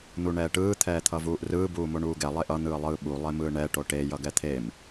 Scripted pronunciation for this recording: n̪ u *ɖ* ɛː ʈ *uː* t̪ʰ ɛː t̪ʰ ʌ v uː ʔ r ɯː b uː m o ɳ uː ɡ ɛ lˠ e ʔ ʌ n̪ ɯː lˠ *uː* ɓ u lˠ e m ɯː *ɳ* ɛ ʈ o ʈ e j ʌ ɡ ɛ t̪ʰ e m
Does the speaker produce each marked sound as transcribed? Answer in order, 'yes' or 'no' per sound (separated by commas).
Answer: no, no, no, yes